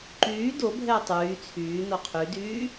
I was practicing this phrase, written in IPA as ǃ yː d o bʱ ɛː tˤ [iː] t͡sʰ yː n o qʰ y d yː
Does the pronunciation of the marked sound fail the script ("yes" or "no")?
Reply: yes